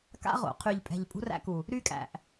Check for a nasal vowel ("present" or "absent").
absent